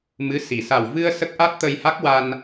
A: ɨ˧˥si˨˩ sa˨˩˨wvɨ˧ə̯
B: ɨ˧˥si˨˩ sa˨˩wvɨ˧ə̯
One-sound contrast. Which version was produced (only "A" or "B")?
B